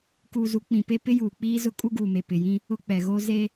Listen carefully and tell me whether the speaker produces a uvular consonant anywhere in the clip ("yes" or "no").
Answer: no